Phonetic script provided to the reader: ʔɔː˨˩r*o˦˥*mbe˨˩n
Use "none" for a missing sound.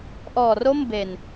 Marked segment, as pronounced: o˥˩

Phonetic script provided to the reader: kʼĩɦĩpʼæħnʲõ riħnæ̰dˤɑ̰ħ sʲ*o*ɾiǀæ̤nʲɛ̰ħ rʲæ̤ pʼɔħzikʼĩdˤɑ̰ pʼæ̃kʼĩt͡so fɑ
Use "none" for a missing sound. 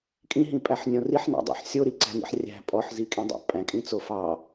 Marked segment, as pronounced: o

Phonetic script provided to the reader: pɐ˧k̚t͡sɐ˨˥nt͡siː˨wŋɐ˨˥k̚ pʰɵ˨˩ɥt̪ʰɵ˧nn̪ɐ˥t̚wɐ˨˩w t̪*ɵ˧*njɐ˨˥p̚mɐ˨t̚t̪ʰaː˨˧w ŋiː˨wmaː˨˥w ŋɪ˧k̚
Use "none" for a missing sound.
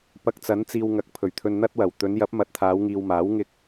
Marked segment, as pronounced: ɵ˨˧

